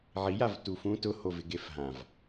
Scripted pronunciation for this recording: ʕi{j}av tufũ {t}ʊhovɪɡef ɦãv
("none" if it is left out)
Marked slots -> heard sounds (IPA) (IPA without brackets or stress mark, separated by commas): j, t